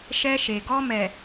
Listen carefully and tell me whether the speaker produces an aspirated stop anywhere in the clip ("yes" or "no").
no